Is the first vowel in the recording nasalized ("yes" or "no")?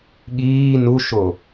no